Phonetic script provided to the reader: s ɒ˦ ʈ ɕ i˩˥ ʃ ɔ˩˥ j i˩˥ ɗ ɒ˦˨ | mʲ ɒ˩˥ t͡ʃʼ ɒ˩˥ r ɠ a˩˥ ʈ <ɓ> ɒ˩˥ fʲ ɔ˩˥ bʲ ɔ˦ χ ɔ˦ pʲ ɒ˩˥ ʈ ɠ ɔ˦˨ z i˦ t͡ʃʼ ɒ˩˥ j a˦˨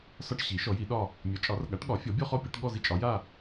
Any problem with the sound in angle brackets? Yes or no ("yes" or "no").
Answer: yes